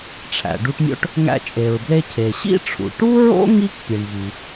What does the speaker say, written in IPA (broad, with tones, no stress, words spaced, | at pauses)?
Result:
ʈ͡ʂʰæ̰˩ɖu˧ʈmʲo̰˥ʈ | ŋæ̰˧t͡ʃʼe˩ɹble˧ cʰe˩ɕḭ˥ʈ͡ʂʰṵ˩ ʈu˥ɹo̰˥ ŋi˥kpʲe˩ɳvi˩